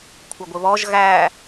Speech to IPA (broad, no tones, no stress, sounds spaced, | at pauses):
kʷʰ ʌ ɡʷ ɪ β ɔ ʒ ɣ æ